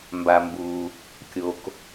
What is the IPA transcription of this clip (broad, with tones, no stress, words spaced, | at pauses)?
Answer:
mba˩mbu˩ | kʲo˩k